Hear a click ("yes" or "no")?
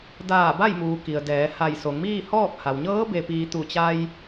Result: no